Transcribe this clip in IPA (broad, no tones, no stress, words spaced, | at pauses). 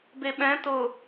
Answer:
beɓɛ̃ tʊ